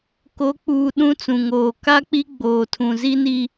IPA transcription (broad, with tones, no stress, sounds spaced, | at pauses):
k o˨˦ k͡p uː˨ ɗ ũ˦ t͡s ũ˨ ŋ oː˨ k a˦ k͡p i˦ ɡ͡b oː˨ tʰ ũ˨ z i˦ n i˦